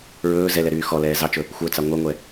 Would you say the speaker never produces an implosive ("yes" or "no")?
yes